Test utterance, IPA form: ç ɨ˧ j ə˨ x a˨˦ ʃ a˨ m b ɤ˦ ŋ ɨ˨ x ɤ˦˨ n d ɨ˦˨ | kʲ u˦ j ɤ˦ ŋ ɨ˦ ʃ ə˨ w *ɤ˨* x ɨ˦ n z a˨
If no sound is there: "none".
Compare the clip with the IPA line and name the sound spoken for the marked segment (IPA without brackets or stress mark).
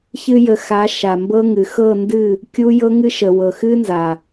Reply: ɤ˨